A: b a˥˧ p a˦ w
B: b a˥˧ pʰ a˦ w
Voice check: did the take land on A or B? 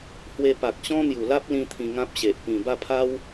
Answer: B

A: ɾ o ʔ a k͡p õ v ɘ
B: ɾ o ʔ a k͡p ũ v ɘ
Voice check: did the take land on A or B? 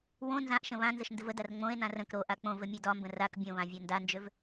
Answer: A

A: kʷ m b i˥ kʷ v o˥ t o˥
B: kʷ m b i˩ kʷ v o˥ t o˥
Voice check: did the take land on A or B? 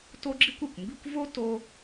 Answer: A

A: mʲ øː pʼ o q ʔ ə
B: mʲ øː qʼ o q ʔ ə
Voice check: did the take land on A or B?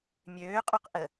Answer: B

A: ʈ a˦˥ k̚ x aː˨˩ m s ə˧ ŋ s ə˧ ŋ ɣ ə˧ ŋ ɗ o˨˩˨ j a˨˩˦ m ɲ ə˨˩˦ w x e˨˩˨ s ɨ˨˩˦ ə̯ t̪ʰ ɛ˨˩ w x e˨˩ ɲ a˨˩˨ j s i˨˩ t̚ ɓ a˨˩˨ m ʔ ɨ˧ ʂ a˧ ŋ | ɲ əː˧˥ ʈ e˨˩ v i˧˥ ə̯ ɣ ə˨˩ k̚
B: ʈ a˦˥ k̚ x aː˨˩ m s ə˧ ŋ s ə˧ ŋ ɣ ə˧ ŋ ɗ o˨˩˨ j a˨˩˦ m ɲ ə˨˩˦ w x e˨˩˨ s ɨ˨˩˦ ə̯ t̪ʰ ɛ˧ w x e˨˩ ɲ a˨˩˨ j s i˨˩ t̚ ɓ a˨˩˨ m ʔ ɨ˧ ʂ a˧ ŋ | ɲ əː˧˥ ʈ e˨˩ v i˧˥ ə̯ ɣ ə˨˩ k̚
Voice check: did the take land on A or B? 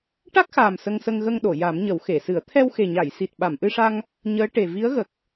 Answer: B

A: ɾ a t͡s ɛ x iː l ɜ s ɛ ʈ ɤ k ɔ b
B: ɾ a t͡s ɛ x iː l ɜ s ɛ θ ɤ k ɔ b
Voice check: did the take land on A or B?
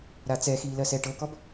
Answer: A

